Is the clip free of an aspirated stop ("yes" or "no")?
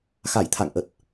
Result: no